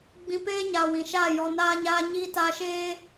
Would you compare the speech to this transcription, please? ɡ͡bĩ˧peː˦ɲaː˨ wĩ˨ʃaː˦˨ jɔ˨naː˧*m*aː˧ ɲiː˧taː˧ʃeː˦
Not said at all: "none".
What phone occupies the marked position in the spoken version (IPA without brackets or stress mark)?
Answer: ɲ